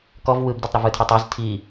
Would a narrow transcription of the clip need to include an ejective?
no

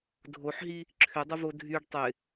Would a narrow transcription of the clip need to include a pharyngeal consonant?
yes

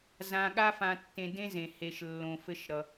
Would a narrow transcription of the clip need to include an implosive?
yes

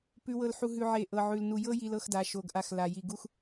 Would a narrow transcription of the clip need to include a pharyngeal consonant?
yes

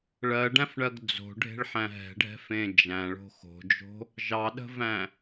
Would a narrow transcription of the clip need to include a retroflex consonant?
yes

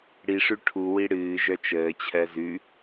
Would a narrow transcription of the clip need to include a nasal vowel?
no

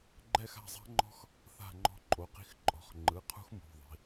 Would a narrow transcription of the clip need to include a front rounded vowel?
no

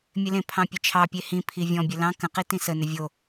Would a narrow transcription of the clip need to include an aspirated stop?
yes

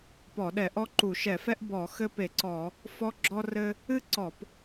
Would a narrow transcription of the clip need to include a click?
yes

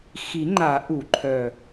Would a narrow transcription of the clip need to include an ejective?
no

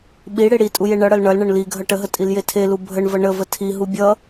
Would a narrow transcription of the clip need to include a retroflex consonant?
yes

